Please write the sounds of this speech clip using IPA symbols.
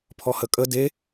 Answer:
pʰɔhəkʼə de

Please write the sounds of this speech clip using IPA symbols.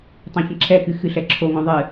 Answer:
tˤɛ̃çɐ̃ǁʰɛkɨ xɨɬɛǁʰoŋõ ðˤɨ

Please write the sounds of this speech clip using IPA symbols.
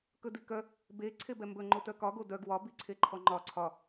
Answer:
kɵdikœ | be ǀʰebɛmbɵ ŋ͡ǃotœkɒ ɡodœɡ wɒ biǀʰeǃʰɔŋ͡ǃɒ ǀʰɒ

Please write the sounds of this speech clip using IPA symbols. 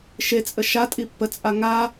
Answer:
ʃet͡sʼə ʃatʼi pːət͡sʼa ŋa

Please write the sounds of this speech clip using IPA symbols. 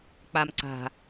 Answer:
k͡pam ǀa̤

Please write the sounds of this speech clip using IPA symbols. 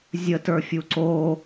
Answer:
zʲətə˞fʲu ǀo

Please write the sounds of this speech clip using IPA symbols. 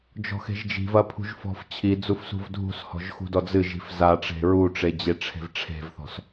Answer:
d͡ʒɔ̤xe̤ʒd͡ʒi̤vɐ pʰṳʒfɔ̤ft͡ɕʰid͡zuf sṳvdʱṳshɔ̤ʒ xṳdɔd͡zɨʒi̤f zaʈ͡ʂe̤ ɹuʈ͡ʂe d͡ʑeʈ͡ʂʰe̤vʈ͡ʂʰe̤vθɔ̤s

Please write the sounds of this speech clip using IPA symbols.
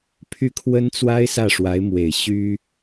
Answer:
pʰy˥˩kʰwə˥nt͡swa˥ɪ̯ sä˥˩ʂwa˧˥ɪ̯mwe˨˩ɪ̯ ɕy˥

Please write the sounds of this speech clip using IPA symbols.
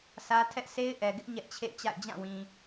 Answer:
sä˦ tʰɛ˦ʔse˦ɪ̯ʔɛ˨ɡɪ˦ʔ ɲɛ˦ʔt͡ɕʰḛ˦˨ɪ̯t͡ɕa̰˦˨ɪ̯ d͡ʑã˦˨wĩ˨

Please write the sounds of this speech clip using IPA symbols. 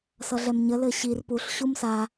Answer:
sʌɮɛmɲə lɘɕir puɬ ɕumsa

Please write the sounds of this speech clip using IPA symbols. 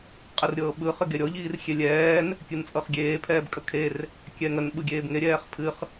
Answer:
qʼɨrɾʲɤːɓɯ χɨɡeɾʲɔ ʎiːrxʲelʲɛːn | kʲɨnt͡sʼɤχɡʲeː pʰɛːbkʼəkʰer | kʲɛŋən ɓɯɡʲeːbŋe ɾʲɛːχpʰɨχ

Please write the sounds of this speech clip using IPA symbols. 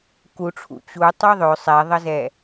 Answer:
kuʈ͡ʂʰṵ t͡ɕu tˤøðˤø sˤɛðˤəzɛ

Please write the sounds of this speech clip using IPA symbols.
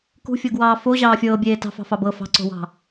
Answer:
kṳfʲɤɡwɑː foʑɑː fʲɤːbʲeː tɑ̤fɑ̤fɑ bɤ fɑ̤ǀo̤wɑ̤

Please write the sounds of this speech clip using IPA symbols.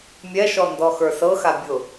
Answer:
mʲɛʃɔndɔxə˞ sɤxa bʲʊ

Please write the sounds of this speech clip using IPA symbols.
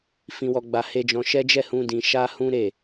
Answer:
fĩ˧wɔ˧ɡ͡ba˧ he˧d͡ʒɔ̃˧ʃɛ˦ d͡ʒɛ˦˨hũ˧ dĩ˦ ʃa˦hũ˦ ɾe˦˨

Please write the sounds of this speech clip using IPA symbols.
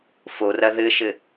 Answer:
forɐ ðɘʃɘ

